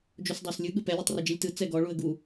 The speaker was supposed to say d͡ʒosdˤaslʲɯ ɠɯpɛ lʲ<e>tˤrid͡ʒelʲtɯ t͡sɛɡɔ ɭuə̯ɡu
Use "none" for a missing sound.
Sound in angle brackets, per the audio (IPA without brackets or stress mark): e